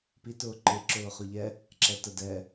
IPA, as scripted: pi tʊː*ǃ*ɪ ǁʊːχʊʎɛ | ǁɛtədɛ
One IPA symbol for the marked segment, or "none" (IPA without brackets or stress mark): ǃ